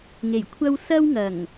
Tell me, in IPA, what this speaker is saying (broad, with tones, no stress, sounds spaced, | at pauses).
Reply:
ŋ e˨˩ j kʷʰ ɐ˥ w s ɐ˥ w ŋ ɐ˨˩ ŋ